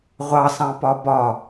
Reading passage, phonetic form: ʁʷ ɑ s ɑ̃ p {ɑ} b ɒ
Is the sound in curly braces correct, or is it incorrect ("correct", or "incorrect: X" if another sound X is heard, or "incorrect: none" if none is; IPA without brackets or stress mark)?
incorrect: ɒ